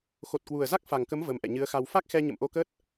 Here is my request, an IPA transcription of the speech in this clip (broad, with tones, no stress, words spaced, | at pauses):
xo˨˩t̚kwu˨˩ə̯za˦˥k̚ fa˨˩ŋkə˨˦m və˨˦mʔɛ̰˧˨ ɲɨ˨˦ə̯xa˧w fa˦˥k̚xɛ˧ ɲə̰˧˨mʔo˧kəː˦˥t̚